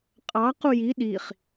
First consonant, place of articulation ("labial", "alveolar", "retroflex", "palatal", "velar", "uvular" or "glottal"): uvular